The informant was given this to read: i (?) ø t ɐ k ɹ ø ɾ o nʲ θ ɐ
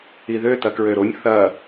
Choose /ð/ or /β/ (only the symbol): ð